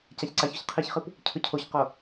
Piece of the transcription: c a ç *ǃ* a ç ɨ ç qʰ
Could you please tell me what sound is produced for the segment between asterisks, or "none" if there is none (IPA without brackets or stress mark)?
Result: ǀ